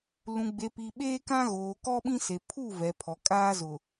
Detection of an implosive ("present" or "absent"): present